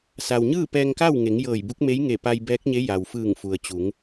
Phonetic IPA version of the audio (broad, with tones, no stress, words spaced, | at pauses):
sa˩wɲɯː˥˨ pɛː˧ŋka˥˨wŋe˩˧ŋ jɤː˧˩jbu˧˥k̚me˧˥j ŋe˧˩pa˧jbɛː˧˥k̚ɲe˧˥ ja˩wfɯː˧˩ŋfu˩ə̯ t͡ɕu˩˧ŋ